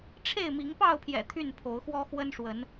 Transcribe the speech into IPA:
ʈ͡ʂʰ e˥˨ ɪ̯ m i˨˦ ŋ p ɑ˥˨ ʊ̯ pʰ j ɛ̰˨˩ t̪ʰ y˥˨ n pʰ o˨˦ ʊ̯ x w ɔ˦ x w ə˦ n ʂ w ə˨˦ n

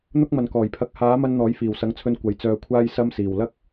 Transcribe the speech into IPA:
n̪ ʊ˥ k̚ m ɐ˨ n k ɔː˨˩ j pʰ ɐ˨˥ k̚ h aː˨˥ m ɐ˧ n n̪ ɔː˨˥ j f iː˨˩ w s ɐ˨˥ ŋ t͡sʰ ɵ˧ n kʷ ɐ˨˥ j t͡s œː˧ kʷʰ aː˥ j s ɐ˧ m s iː˨˩ w l ɐ˥ k̚

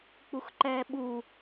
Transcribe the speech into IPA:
k͡p u x ǃ ɛː ɓ u

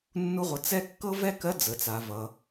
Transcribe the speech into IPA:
nː u˥ ʁʷ ʌ˧ t͡s ɛ˥ kː ɤ˥ v ɛ˥ k ɜ˧˥ d͡z ə˩˧ t͡s a˩˧ v ʌ˩˧

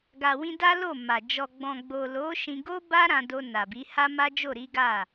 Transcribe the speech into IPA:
ɡ a˨ w ĩ˧ d a˦ l o˦˨ m a˨ d͡ʒ ɔ˨ ɡ͡b ɔ̃˨ ɡ͡b o˨ l o˨˦ ʃ ĩ˧ ɡ o˦ b a˦ ɾ ã˧ d o˧ n a˨ b i˨˦ h a˦ m a˦ d͡ʒ o˦˨ ɾ i˨˦ ɡ a˦˨

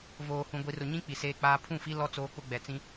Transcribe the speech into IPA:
v oː˨ h ũ˨ ɡʷ i˨ r ʊ˨ ɲ ĩ˦ k͡p i˨ s eː˦ k͡p aː˦ pʰ ũ˦˨ f i˦ l ɔ˦ t͡s oː˦ k͡p ʊ˦ ɡ͡b ɛ˨ t͡s ĩ˦

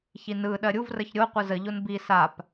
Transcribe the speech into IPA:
ç i n ɯ ɗ ɜ ɾʲ u v r ə ç ɾʲ o qʷ ɯ z ə ʎ o n b i s a p

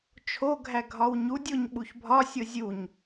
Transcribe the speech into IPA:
t͡ʃʰ o ɡʱ æ ɡʱ ɒ w ɲ u dʲ o ɲ ɓ u ç bʱ ɒ sʲ o zʲ u ɲ

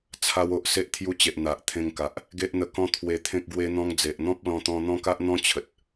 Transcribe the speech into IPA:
t͡sʰ a˧ w o˨ ʔ s e˦ ʔ t̪ʰ j u˧ t͡ɕ e˨ ʔ n̪ a˨ ʔ t̪ʰ ẽ˧ ŋ k a˨ ʔ | ɡ e˦ ʔ n̪ ə˧ k ɔ̃˦ t̪ʰ w e˧ t̪ʰ ẽ˦ k̚ ɡ w e˦ n̪ ɔ̃˧ ŋ d͡z e˨ ʔ n̪ ɔ̃˦ p̚ l ɔ̃˧ t̪ ɔ̃˧ n̪ ɔ̃˦ k a˦ ʔ n̪ ɔ̃˦ t͡ɕʰ ə˨ t̚

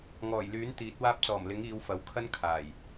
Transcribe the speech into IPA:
ŋ ɔː˨˩ j l yː˨˥ n t̪ iː˨˥ t̚ w aː˧ p̚ t͡s ɔː˨˩ m l ɪ˨˥ ŋ iː˨˧ w f ɐ˨˥ w kʰ ɐ˥ n kʰ aː˨˩ j

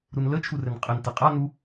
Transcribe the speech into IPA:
ɾ u n l ə t͡ʃʰ u r ɘ n qʼ ɘ n t ɘ qʼ a n u

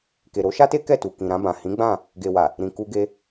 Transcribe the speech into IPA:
k e˨ ɾ o˨˦ ʃ a˦ t e˦ k ɛ˦˨ t u˨ k ĩ˨ ɾ ã˧ b ã˨ h ĩ˨˦ ɡ͡b ã˦˨ | ɡ e˨ w a˨ | ɾ ĩ˨ k u˧ ɡ e˧

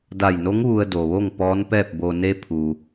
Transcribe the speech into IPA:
d a˧˩ j n o˧˥ ŋ ʋ u˧ ə̯ d o˩ ʋ o˥˨ ŋ p ɔː˧˥ n p ɛː˥˨ p̚ b o˧ n e˧ pʰ u˩

